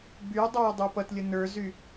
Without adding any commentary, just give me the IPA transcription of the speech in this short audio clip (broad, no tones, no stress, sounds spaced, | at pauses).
b y u̯ dˤ o u̯ dˤ u p ʌ t lʲ ə n ə˞ z y